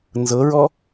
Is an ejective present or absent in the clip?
absent